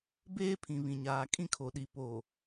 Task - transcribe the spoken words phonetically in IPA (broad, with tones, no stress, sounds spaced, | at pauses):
b eː˦ pʰ ĩ˨ β ĩ˨ ɲ aː˨ kʼ ĩ˦ kʰ o˨ ɗ i˨ p o˨